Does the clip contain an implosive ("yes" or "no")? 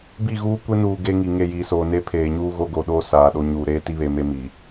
yes